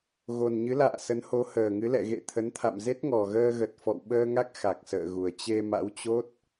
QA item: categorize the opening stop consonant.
aspirated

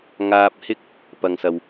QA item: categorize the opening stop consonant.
plain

